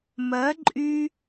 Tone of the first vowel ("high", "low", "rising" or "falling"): rising